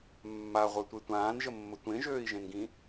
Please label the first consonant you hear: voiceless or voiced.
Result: voiced